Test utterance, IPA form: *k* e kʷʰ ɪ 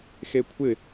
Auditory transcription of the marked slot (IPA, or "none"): x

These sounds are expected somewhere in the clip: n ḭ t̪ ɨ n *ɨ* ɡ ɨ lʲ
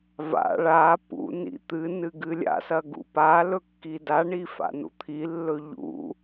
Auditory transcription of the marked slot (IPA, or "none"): ɨ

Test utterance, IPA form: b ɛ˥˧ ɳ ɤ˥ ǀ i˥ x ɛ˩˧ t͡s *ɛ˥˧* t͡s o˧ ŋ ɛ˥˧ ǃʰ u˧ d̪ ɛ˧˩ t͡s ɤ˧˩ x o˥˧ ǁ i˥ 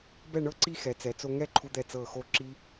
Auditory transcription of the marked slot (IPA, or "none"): ɛ˩˧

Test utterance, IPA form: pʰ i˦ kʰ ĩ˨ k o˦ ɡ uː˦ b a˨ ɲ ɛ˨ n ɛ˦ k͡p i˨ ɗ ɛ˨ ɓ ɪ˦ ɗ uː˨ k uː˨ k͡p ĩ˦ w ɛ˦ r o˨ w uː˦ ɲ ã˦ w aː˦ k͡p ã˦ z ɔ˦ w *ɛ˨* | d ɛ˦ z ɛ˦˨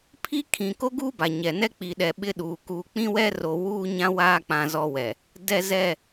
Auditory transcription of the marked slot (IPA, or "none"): ɛ˨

